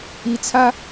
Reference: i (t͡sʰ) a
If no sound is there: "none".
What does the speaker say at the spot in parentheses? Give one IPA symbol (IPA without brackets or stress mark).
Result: t͡sʰ